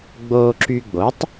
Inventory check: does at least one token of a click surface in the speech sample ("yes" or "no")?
yes